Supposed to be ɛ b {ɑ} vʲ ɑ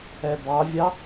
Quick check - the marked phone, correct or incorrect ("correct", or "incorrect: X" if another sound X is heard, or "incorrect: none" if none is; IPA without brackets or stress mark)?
correct